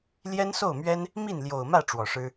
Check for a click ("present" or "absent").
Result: absent